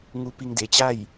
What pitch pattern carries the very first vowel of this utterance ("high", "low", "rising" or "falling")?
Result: rising